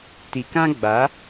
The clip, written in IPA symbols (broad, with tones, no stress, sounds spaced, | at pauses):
t i˨ k ã˦ ɡ͡b a˨˦